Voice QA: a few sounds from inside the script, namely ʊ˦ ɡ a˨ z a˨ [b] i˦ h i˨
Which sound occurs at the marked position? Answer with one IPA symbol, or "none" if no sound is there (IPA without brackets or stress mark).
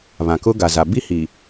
b